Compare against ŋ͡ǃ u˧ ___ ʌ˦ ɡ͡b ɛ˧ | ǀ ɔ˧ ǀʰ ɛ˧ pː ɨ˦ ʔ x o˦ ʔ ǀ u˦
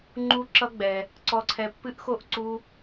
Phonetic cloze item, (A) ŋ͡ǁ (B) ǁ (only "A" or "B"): B